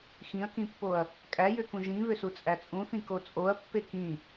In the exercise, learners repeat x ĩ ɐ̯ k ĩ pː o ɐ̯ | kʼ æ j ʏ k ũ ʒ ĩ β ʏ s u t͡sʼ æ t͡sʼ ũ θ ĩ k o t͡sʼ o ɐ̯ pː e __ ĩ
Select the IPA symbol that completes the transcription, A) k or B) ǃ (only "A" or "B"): A